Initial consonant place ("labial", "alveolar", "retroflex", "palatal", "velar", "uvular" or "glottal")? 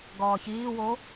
velar